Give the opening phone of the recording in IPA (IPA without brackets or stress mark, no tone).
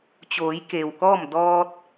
t͡ɕ